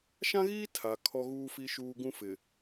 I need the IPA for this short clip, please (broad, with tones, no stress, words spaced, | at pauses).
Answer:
ʃã˦ɣiː˦ tʰa˨ kʰɔ˦ɣuː˦fi˦ʃuː˦ ɡũ˦fɪ˨